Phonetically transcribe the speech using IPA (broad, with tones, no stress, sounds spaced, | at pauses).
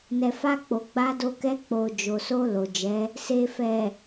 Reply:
n ɛ˨ f a˧ k͡p o˨ ɡ͡b a˧ d o˧ k ɛ˧ k͡p o˨ d͡ʒ o˨ s o˧ l o˨ d͡ʒ ɛ˨˦ | s e˨ f ɛ˨